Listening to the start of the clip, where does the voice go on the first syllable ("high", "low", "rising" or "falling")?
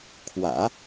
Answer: low